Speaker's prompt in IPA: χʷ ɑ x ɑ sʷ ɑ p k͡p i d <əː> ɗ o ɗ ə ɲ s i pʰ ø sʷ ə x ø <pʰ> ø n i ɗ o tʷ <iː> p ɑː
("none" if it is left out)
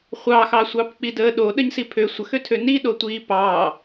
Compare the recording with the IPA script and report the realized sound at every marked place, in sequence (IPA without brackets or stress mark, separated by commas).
əː, tʰ, iː